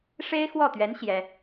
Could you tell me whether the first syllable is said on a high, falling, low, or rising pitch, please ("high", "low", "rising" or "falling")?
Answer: high